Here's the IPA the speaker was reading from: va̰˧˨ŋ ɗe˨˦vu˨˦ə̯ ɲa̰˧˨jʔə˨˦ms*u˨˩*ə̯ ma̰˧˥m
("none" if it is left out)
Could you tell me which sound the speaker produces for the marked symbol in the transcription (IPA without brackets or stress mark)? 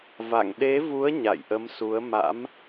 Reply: u˨˦